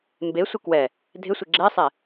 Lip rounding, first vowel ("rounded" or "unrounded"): unrounded